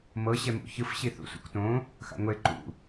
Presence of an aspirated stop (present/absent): absent